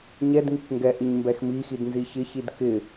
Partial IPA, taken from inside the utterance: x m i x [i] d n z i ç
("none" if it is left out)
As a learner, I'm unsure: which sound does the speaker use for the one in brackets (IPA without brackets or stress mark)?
i